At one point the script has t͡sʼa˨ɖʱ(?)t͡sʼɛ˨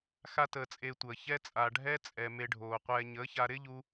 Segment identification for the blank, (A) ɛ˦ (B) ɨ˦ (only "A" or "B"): A